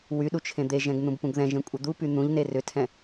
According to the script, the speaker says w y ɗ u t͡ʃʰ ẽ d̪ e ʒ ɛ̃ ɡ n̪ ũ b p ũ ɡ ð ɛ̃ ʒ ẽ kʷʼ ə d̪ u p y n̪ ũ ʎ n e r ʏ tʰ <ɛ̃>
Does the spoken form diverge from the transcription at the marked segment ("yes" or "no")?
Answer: no